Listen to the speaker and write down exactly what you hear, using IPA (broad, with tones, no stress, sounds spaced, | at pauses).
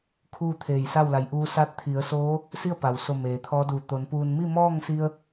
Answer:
kʰ uː˥˨ t̪ʰ eː˧˩ j s a˥˨ w l a˩˧ j ʔ uː˧˥ s a˥˨ t̚ t̪ʰ i˩˧ ə̯ s oː˧˥ | s i˥˨ ə̯ p a˩ w s o˧˩ m eː˩ t̪ʰ ɔː˧˥ d uː˧˩ t̪ o˩˧ n p uː˧ n m i˥˨ m ɔː˥˨ ŋ s i˧ ə̯